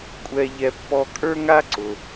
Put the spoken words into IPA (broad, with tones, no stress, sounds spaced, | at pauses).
kʷʼ ɛ˧ ʎ ɛ˧ pː ɔ˧ kʼ ə˞˥ ŋ a˥ ǀ ʊ˩